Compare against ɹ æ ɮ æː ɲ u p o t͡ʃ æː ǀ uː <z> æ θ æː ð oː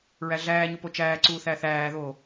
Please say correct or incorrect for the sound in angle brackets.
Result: incorrect